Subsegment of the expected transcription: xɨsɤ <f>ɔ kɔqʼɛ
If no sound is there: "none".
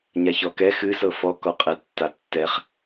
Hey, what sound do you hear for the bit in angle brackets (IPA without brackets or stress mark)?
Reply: f